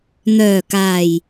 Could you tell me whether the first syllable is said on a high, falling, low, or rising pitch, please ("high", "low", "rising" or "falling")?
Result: low